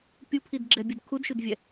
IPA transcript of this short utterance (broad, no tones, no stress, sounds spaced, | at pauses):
pʲ u pʰ i d ɡ͡ǁ ɛ bʲ ɯ d kʰ u d ʃ u d vʲ ɛ